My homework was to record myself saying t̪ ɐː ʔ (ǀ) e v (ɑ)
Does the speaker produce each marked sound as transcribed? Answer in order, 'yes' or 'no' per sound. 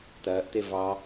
no, yes

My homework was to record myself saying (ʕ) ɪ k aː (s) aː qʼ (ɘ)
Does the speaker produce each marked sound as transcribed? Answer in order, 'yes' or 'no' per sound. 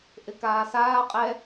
no, yes, no

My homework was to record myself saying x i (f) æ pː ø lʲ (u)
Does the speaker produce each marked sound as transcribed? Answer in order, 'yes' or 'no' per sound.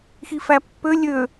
yes, no

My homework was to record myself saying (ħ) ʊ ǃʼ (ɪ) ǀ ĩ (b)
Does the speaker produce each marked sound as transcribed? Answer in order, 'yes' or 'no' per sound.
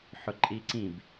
yes, no, yes

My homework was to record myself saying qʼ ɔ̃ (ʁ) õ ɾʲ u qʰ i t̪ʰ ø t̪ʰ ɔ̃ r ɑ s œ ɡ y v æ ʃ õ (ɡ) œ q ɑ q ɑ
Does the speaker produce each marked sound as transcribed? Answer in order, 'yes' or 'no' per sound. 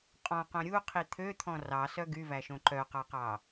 no, no

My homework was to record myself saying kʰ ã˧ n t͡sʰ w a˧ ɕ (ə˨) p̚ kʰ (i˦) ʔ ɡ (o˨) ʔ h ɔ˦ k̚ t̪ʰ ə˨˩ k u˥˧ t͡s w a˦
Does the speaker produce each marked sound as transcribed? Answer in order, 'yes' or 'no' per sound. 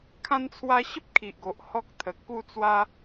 no, no, yes

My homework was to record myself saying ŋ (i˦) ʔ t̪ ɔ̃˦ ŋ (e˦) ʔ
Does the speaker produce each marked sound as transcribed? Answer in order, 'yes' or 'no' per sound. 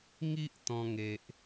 yes, yes

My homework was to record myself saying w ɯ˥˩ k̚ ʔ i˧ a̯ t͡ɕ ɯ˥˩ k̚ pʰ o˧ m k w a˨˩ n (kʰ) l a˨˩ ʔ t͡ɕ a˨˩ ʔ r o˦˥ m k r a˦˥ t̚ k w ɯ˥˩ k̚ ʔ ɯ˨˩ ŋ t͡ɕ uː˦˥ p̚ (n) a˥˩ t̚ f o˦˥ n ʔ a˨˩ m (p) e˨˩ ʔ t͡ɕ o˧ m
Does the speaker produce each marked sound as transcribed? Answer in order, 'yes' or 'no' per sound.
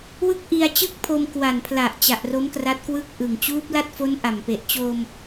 no, no, yes

